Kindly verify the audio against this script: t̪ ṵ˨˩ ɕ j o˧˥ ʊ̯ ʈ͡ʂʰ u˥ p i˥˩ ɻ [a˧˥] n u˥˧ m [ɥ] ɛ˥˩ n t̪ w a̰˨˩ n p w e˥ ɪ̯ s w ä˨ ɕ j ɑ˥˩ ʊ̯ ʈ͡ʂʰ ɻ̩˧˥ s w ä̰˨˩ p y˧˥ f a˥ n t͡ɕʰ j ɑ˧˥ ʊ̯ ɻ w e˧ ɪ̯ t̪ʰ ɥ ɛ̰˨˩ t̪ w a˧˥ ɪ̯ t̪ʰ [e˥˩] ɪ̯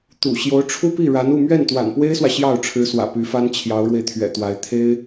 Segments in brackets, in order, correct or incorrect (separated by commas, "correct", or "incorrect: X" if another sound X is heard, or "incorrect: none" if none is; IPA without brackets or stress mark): correct, correct, incorrect: e˥